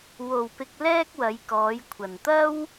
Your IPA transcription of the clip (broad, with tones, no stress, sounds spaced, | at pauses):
w o˨ w p ɪ˧ k̚ l ɛː˥ k̚ w ɐ˨˧ j k ɔː˨˧ j kʷʰ ɐ˨ n t̪ ɐ˥ w